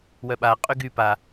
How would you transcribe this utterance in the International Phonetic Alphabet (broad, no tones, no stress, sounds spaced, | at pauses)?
w œ ɓ a qʼ y ɡ y p a